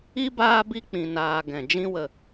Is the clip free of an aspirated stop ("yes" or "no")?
yes